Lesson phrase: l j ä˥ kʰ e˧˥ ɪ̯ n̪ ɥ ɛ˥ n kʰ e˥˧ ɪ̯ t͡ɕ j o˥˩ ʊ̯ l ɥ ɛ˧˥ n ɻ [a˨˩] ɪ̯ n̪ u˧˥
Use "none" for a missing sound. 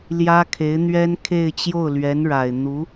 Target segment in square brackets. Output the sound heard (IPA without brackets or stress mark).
a˨˩